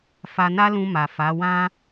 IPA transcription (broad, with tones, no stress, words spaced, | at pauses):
fa˧na˦lũ˧ ma˨fa˨˦wã˦